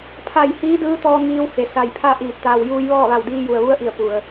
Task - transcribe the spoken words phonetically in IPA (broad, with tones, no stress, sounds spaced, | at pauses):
pʰ a˧˩ j h iː˧˥ d ɯː˧˥ t̪ ɔː˧ ŋ iː˧ w h e˩ s a˧˩ j pʰ a˥˨ ʔ iː˧˩ t̚ t̪ aː˩ w j uː˧ j ʋ ɔː˥˨ ʋ a˧˩ w d iː˧ j u˩ ə̯ ʋ u˧˥ ə̯ ʔ i˧˩ ə̯ p u˩ ə̯